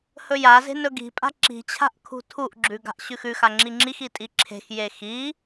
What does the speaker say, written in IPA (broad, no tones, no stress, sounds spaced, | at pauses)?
h ɵ j a z e̤ n ɵ ɡ i̤ pʼ a̤ ǁ i̤ t͡ɕʰ a̤ ʔ kʰ ṳ tʰ u ʔ ɡ͡ǁ ʉ ɡ a̤ ʔ ɕ ʉ x ʉ x a ŋ͡ǁ i ŋ͡ǁ i x i tʼ i ǁʰ e̤ x j e x i